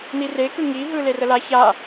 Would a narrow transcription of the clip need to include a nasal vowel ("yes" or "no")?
no